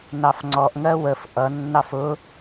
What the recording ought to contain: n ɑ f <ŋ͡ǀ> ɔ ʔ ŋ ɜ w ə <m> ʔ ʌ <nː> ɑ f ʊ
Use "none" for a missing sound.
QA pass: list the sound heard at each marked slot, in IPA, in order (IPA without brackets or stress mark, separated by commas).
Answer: ŋ͡ǀ, f, nː